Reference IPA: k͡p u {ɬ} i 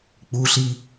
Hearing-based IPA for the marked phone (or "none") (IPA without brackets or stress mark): ɬ